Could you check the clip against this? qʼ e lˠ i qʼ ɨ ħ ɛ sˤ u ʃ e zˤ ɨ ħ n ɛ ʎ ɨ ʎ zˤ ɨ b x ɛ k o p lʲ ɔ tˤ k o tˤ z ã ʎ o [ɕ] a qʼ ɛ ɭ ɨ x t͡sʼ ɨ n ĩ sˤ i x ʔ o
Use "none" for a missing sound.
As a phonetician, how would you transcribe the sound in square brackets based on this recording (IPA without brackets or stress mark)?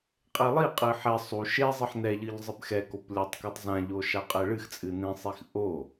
ʃ